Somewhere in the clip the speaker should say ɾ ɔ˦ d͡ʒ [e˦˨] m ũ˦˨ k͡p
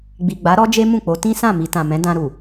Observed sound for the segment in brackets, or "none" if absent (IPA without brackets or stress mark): e˦